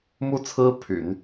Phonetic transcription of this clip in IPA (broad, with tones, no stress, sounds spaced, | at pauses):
m u˥ t͡sʰ ɹ̩˥ pʰ y̰˨˩˦ n